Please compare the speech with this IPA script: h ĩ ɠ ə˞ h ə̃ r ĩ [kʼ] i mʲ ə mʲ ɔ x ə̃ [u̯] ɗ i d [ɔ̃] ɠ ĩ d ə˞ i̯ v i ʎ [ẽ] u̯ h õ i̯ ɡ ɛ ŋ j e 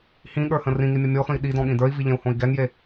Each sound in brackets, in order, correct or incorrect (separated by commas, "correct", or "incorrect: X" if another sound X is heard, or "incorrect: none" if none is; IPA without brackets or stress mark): incorrect: ŋ, incorrect: i̯, correct, correct